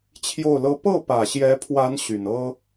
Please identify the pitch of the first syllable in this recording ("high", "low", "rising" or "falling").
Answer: falling